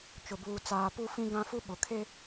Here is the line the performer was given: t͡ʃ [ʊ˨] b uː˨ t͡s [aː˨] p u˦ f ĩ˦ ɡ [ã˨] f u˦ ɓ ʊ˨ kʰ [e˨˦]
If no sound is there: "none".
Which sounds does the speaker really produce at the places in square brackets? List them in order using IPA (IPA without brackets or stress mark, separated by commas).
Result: ʊ˨, aː˨, ã˦, e˦